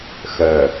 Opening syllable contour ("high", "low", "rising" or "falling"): low